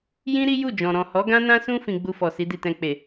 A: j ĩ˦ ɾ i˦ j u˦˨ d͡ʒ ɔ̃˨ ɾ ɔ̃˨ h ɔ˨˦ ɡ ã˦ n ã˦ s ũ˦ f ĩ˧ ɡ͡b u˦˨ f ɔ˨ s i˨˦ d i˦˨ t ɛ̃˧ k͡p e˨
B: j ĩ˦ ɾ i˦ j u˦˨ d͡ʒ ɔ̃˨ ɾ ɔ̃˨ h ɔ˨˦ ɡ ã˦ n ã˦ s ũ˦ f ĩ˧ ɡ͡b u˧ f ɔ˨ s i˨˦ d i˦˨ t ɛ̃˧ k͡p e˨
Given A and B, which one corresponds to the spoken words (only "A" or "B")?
B